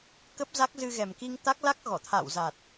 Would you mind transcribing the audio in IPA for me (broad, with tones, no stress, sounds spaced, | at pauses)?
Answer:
k ə˦˥ p̚ z a˦˥ k̚ z ɨ˧ ɣ ɛ˨˩ m k i˧ ŋ t̪ a˦˥ k̚ l a˦˥ k̚ ɣ ɔ˧˩ t̪ʰ a̰˧˨ w z a˨˩ t̚